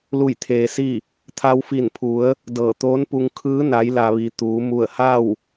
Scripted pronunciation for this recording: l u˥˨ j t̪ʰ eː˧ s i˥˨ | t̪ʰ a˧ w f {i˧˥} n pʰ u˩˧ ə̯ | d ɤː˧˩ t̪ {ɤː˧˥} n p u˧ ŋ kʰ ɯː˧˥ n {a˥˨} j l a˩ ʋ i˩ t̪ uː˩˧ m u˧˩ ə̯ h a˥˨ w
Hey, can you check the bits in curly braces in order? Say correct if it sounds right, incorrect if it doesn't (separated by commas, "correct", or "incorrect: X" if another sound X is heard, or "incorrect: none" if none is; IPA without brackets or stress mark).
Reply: incorrect: i˧˩, incorrect: oː˧˥, incorrect: a˩˧